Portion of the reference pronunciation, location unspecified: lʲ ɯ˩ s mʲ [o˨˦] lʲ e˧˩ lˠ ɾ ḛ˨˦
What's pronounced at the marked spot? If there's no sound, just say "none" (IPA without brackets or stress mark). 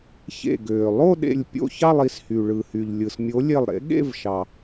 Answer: o˨˦